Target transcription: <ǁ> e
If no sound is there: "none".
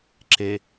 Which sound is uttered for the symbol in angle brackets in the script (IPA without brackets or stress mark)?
ǁ